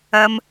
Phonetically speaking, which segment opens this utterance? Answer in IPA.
ɐ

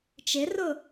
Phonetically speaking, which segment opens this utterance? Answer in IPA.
t͡ʃ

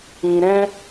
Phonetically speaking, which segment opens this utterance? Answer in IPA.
ĩ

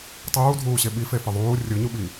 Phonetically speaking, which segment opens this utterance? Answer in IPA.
tˤ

